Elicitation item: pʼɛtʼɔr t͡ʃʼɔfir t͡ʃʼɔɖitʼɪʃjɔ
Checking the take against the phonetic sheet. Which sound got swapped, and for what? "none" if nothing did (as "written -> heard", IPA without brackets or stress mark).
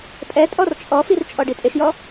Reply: none